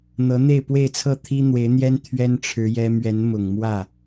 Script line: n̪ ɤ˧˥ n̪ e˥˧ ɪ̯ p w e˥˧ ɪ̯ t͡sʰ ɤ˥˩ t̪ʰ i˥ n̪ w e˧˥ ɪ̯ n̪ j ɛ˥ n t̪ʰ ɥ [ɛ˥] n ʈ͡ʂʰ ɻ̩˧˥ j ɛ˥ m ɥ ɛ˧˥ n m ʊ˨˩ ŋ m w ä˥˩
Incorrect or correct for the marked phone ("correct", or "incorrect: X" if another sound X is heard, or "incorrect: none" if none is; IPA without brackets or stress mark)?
correct